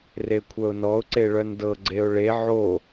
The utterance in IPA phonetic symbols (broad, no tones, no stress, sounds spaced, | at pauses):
r e kʷʰ œ ʊ̯ n ɔ ʊ̯ ǀ e ɭ œ n d ɤ ɡ͡ǀ e ʊ̯ ɭ e ʕ o